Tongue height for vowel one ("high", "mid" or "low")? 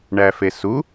low